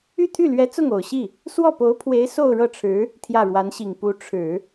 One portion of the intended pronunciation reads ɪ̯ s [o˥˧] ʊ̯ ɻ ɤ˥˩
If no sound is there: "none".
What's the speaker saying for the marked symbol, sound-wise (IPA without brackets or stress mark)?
o˥˧